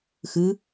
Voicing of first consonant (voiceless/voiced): voiceless